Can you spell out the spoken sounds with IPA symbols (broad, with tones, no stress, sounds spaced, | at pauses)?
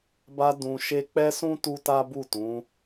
b a˧ d ũ˧ ʃ e˦ k͡p ɛ˦ s ũ˦ t u˦ t a˦ b u˦˨ t ũ˨˦